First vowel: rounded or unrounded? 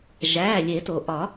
unrounded